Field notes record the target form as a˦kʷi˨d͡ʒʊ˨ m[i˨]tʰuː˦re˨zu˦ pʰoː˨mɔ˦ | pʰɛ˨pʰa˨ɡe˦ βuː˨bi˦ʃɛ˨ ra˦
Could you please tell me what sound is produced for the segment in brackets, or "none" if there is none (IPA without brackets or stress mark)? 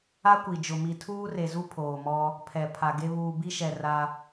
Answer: i˨